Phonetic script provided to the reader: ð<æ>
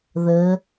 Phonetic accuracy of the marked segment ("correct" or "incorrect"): incorrect